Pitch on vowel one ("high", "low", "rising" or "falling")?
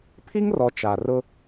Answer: high